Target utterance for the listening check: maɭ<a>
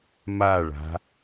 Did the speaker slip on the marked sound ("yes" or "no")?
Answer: yes